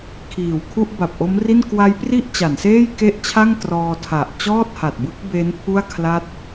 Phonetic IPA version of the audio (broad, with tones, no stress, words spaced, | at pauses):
kʰiː˨˩w kʰu˥˩ʔba˨˩p̚ʔo˦˥mri˥˩n kwa˦˥jpri˥˩ʔ t͡ɕa˩˦nseː˥˩jke˥˩ʔt͡ɕʰa˥˩ŋ trɔː˧tʰa˨˩ʔ t͡ɕɔː˥˩t̚ha˨˩t̚ bɯ˦˥k̚ be˦˥n pʰu˥˩a̯kʰla˦˥t̚